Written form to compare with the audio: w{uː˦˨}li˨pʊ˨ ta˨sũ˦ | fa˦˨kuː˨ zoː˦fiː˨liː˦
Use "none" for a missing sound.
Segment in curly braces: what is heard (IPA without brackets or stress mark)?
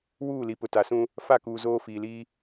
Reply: uː˦˨